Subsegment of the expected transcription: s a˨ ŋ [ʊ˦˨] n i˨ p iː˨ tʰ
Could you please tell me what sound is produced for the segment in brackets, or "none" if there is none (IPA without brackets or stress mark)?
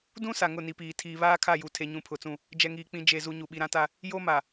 ʊ˦˨